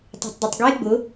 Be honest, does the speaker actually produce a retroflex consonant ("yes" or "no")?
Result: no